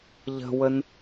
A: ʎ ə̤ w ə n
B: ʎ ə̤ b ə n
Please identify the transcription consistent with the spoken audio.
A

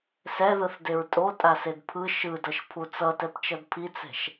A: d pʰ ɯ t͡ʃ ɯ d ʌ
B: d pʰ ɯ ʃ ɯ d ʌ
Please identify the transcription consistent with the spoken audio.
B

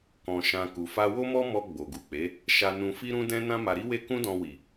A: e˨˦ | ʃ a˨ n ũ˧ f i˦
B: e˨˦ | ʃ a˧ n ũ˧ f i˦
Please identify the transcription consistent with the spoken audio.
B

